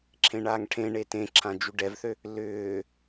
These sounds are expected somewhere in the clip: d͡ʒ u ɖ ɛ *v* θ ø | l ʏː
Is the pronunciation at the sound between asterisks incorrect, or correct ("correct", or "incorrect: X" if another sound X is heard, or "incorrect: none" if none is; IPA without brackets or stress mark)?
correct